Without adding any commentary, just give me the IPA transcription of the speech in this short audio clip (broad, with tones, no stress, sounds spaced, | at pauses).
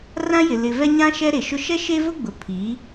r ã˦ j ɪ˨ l ɪ˨ v ɛ˦ ɲ ã˦ ʃ ɛ˦ ɾ e˨ ʃ ʊ˦ ʃ ɛ˦ ʃ e˦ v ʊ˦ ɡ͡b ʊ˨ pʰ i˨˦